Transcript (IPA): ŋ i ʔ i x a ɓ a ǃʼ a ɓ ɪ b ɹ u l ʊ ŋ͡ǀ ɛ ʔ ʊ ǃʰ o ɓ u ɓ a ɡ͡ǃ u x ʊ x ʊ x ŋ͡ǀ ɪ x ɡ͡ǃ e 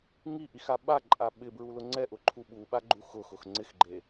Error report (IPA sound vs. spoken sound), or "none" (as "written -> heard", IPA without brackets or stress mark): o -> u